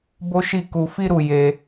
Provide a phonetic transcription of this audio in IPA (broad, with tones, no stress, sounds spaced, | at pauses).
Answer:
b o˦ ʃ i˦˨ k u˧ f i˦ ɾ u˧ j e˧